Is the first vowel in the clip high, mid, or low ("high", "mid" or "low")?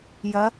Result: low